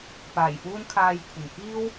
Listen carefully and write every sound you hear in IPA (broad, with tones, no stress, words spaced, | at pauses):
paː˨˩jfuː˥nkʰaː˧jkʷʰɪ˨˩ŋ kiː˥w